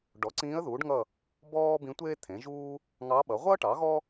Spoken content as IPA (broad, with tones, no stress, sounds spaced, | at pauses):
ɖ ɔ˩˥ ǀ ĩː˧˥ ə̯ ð uː˩˥ ɖ ŋ ʌ˦˨ | b ɔː˥ b ĩ˧˥ tʷ eː˥ t̪ʰ ẽ˩˥ ʒ uː˥ | ŋ ɑ˧˥ ɓ ʌ˩˥ ʁʷ ʌː˥ ʈ ɑ˩˥ ɣ ɔ˥